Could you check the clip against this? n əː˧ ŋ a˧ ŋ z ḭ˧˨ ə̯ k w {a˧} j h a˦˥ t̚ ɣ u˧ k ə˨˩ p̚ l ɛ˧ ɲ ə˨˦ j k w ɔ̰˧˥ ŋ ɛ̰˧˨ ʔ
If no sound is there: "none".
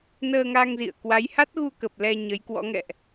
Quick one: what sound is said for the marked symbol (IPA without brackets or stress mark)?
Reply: a˨˦